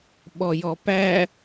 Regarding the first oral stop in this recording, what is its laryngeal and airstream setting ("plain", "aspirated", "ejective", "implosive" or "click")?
implosive